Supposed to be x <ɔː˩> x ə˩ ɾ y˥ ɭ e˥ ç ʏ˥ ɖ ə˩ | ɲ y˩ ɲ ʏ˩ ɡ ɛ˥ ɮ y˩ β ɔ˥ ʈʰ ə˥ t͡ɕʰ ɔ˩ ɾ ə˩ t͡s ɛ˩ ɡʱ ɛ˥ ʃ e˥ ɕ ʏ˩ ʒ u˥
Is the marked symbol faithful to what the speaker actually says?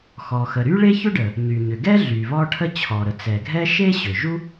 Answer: no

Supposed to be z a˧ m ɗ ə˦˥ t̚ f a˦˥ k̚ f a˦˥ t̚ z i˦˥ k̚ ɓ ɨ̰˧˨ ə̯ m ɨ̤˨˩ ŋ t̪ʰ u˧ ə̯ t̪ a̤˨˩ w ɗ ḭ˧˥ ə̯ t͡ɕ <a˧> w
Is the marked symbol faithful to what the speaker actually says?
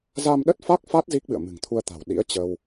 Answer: no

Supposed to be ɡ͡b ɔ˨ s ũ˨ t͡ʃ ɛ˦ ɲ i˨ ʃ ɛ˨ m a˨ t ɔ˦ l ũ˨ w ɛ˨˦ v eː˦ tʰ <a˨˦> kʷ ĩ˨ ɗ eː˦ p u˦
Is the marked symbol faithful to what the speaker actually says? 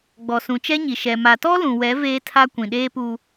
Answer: no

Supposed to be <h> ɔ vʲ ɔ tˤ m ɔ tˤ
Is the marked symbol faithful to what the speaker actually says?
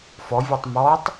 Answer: no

